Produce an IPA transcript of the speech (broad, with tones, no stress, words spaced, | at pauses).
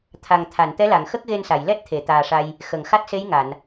t̪ʰa˨˩ŋ t̪ʰa˨˩˨n t̪ɛ˧˥la˨˩˨ŋ xə˦˥k̚ɣe˧nsa˨˩˨j lɛ˦˥t̚ t̪ʰe˨˩˨t̪aː˨˩ʂa˧j | xə˨˩˨ŋxa˦˥t̚se˧˥j ŋa˨˩˨n